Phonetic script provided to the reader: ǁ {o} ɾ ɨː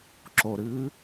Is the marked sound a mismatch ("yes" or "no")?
no